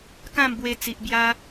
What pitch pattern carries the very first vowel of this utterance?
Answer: falling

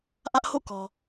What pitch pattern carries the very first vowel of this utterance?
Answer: high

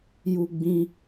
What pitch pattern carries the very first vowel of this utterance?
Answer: high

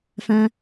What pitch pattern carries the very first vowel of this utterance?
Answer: high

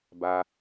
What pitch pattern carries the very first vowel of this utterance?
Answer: low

